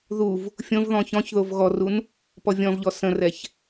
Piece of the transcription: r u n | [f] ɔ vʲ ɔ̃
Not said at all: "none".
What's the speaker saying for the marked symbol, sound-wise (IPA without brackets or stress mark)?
p